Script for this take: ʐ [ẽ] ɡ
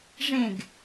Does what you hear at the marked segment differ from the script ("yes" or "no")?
no